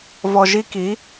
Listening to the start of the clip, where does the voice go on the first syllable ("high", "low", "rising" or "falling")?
low